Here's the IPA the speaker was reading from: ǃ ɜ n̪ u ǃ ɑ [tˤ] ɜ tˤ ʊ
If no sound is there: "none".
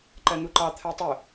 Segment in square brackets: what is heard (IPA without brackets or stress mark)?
t̪ʰ